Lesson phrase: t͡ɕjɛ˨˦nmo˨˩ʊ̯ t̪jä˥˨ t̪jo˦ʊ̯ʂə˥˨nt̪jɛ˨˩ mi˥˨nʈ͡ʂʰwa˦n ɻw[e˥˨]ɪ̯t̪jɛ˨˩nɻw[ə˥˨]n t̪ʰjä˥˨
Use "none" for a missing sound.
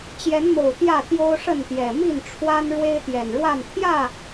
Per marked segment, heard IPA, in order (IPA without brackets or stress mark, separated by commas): e˦, a˥˨